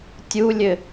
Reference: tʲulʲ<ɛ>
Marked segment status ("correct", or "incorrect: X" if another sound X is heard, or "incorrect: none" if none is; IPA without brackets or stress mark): incorrect: ɘ